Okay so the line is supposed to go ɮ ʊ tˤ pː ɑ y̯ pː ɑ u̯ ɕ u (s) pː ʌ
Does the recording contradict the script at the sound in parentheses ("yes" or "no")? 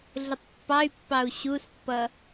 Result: no